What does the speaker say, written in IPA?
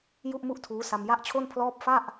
j u˥˩ ʔ m u˥˩ ʔ tʰ uː˦˥ s a˧ m j a˥˩ ʔ t͡ɕʰ o˥˩ n pʰ l ɔː˥˩ p̚ f a˥˩ ʔ

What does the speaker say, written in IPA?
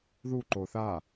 ð u ǃ o θ a

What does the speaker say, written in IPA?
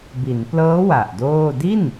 b i˩˦ n p l ɤː˦˥ w a˨˩ ʔ d oː˥˩ d i˥˩ n

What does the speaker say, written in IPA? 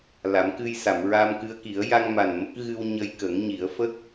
l a˨˩˦ m k ɨ˧ j s a˨˩˨ m ɹ a˧ m k ɨ˧ ə̯ k i˨˩˦ ə̯ j a˧ ŋ m a˨˩ n m ə˦˥ k̚ ɣ ɨ˧ w ɲ ə˧ j k ə˨˩˦ ŋ ɲ i˨˩˦ ə̯ f ə˦˥ k̚

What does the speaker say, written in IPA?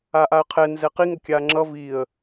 a ʔ a ə̯ qʰ ɛ n z ɛ q i ŋ ʌ kʲ a ŋ͡ǁ ʌ v i ə̯

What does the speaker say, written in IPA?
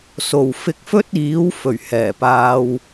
s o˨˩ w f ɪ˧ k̚ f ɵ˥ t̚ iː˨˥ w f ɵ˨˩ ɥ h ɛː˨˩ p aː˧ w

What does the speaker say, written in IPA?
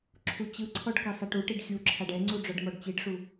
ǁʰ u t͡ɕ ɯ ǀʰ ɔ ɖ k ɛ sˤ ɛ ʈ u ʈ i ɖ xʲ u ǁʰ a ɖ ɛ ŋ͡ǀ u ɖ͡ʐ ɔ ɖ m ɔ ɖ t͡ɕ i ɖ ʂ u

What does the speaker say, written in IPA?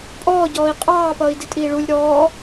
pʼ ɔː ɟ ɔː i̯ qʼ ɑː p ʌː i̯ d i tʼ iː ɭ u lʲ ɾ ɔː

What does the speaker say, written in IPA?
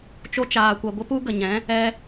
t͡ʃ o˦ t͡ʃ aː˧ kʷ ɛ˧ ɡʷ ə˦ p u˦ ɡ ə˨ ɲ ɛ̃˨˦ | ɛ˦

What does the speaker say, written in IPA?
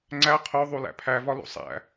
ŋ͡ǀ æ qʰ o ðˤ u l æ̰ pʰ æ v ɒ l ṵ sˤ æ̰

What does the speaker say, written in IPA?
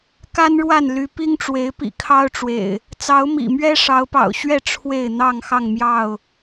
k a˦ n ɻ w a˥˨ n l y˨˦ p i˦ ŋ ʈ͡ʂ w e˨˦ ɪ̯ p ḭ˨˩ kʰ ɑ˦ ʊ̯ ʈ͡ʂ w ḛ˨˩ ɪ̯ | t͡s ɑ˨˦ ʊ̯ m ḭ˨˩ m ɥ ɛ˦ ʂ ɑ˨˦ ʊ̯ p ɑ̰˨˩ ʊ̯ ɕ ɥ ɛ˥˨ ʈ͡ʂʰ w e˥˨ ɪ̯ n̪ ɑ˥˨ ŋ x ɑ˥˨ ŋ m j ɑ˥˨ ʊ̯

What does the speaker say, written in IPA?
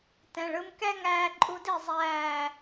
t ɛ̃˨ ɭ ɯ˧ m k ɛ˦ ŋ æː˧ ǃʼ u˧ d i˦˨ zˤ æː˦˨

